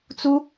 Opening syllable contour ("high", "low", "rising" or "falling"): high